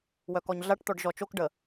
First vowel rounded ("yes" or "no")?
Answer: yes